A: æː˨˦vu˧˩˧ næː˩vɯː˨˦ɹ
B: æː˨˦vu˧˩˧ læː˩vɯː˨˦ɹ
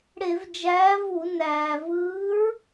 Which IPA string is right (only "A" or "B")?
A